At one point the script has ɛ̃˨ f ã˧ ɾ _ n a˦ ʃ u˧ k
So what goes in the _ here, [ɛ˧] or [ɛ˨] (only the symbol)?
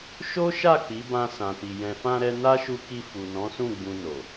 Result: ɛ˧